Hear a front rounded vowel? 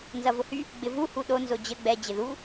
yes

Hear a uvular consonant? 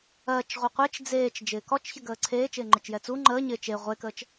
yes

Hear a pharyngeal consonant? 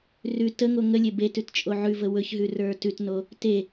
yes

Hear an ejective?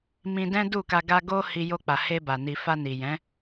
no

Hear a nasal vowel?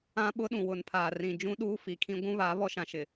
yes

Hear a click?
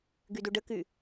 no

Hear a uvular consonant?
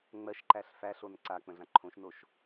no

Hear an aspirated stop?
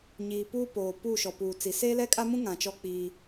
no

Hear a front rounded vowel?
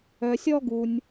yes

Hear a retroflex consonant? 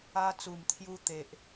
no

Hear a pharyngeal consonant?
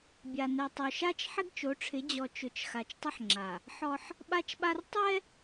yes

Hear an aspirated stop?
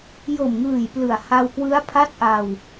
yes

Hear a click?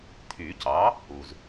no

